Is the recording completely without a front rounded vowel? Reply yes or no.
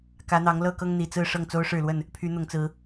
no